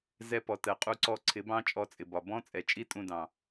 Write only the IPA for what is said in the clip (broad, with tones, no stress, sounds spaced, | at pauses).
z ɛ˧ p ɔ˨ t ɜ˨ qʼ u˧ ǀ ɔ˧ ǀʰ ɪ˨˦ b ɑ̃˦ t͡ʃʼ ɔ˧ t͡sʼ ɪ˨ b ɒ˨ b ɔ̃˦ t͡sʼ ɛ˨ t͡ʃʼ i˦ tʼ ũ˧ d ɑ̃˨